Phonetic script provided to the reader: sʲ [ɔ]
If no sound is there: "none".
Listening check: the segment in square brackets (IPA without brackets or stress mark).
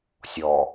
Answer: ɔ